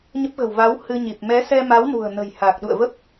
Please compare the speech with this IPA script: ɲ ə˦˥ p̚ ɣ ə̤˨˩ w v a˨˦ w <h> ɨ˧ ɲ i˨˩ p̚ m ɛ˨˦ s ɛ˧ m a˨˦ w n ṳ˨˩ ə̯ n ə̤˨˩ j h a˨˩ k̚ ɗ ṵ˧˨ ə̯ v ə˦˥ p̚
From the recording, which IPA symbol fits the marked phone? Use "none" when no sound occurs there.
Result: h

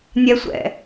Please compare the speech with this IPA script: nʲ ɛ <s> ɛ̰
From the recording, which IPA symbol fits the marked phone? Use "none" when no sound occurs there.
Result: sʷ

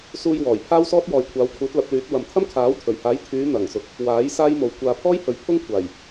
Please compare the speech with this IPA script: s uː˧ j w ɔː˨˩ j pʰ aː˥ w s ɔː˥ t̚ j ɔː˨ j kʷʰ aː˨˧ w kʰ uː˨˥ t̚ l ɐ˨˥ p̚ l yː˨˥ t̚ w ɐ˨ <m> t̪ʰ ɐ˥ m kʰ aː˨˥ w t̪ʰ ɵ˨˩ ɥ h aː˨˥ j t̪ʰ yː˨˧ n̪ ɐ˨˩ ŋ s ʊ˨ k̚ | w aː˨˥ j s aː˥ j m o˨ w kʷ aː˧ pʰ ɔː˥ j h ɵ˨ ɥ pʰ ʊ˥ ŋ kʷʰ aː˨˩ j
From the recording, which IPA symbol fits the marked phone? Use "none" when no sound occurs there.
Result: m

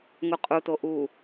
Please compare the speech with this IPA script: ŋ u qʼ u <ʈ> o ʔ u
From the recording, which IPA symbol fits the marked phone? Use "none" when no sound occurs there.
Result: t̪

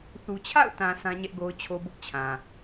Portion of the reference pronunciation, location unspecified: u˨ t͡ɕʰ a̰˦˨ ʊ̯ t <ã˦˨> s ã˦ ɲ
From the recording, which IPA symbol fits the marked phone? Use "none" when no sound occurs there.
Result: ã˨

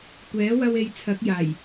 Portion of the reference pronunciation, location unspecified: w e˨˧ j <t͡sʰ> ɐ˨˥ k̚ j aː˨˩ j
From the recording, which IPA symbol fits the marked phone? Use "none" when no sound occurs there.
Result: t͡sʰ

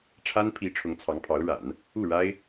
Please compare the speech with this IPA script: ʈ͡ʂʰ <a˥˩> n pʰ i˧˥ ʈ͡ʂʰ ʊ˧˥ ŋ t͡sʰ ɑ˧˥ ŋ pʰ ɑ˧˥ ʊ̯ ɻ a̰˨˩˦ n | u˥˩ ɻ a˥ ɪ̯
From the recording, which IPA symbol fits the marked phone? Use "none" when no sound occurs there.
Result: a˥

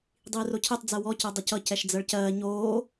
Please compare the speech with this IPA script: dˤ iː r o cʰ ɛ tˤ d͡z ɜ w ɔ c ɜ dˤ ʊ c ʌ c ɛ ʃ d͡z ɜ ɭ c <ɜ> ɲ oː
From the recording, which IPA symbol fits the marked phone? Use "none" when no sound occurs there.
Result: ɜː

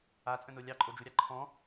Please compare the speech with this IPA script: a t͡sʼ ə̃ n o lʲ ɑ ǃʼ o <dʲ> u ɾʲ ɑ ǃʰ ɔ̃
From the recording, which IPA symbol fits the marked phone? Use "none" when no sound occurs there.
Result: d͡ʒ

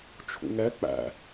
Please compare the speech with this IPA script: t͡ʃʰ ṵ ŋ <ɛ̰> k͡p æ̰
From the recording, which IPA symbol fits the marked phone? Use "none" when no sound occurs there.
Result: ɛ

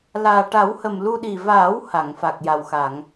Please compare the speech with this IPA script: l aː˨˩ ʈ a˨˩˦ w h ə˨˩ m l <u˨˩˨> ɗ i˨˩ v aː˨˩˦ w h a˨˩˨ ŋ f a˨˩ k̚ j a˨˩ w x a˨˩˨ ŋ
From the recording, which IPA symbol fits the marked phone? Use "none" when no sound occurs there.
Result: u˧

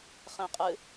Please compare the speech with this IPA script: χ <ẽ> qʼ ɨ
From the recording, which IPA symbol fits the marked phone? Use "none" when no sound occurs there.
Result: ẽ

